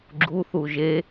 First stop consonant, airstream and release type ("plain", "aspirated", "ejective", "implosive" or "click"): click